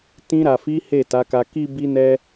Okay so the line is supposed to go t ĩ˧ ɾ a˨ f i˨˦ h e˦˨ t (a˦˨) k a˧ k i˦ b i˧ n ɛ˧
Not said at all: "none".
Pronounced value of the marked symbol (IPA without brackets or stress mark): a˨˦